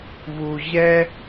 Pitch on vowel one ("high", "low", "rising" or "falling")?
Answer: high